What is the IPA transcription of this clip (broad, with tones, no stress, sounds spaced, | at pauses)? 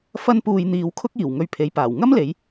f ɐ˥ n p uː˧ j n̪ iː˨˧ w kʰ ʊ˥ k̚ iː˨˩ w ŋ ɵ˧ ɥ pʰ e˨˥ j p aː˨˩ w ŋ ɐ˥ m l e˨˧ j